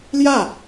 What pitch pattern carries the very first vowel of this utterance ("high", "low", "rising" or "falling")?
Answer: falling